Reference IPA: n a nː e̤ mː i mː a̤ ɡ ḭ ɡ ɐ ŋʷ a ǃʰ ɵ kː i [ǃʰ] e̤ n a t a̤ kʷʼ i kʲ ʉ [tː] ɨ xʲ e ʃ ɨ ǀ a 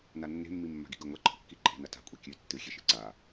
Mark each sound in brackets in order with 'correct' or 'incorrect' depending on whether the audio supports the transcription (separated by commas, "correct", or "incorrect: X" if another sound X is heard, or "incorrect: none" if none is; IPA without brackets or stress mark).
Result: correct, correct